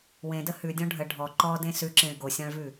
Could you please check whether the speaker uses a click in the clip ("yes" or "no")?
yes